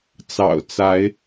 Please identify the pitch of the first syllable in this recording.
low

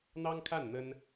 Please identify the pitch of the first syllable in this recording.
high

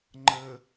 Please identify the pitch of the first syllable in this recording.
low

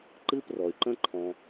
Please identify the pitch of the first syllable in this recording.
high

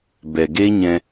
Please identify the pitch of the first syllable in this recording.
low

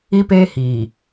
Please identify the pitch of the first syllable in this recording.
high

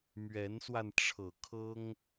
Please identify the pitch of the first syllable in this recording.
rising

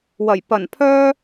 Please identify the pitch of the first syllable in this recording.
low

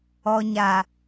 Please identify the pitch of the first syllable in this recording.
low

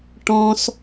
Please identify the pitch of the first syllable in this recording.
high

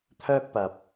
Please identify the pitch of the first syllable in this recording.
high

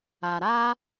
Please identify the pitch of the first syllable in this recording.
low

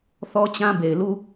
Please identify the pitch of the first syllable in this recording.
high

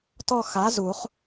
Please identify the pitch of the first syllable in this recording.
falling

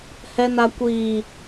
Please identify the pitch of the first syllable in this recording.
low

